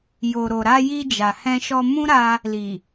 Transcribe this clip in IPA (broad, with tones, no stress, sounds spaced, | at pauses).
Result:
j o˨ ɾ o˨ ɾ a˧ j i˧ d͡ʒ a˨ h ɛ̃˧ ʃ ɔ˧ m ũ˦ ɾ a˧ | l i˨